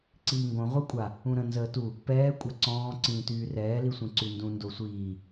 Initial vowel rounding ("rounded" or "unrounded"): unrounded